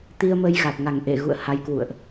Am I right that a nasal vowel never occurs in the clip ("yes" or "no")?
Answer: yes